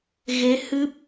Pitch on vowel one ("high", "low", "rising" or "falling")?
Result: rising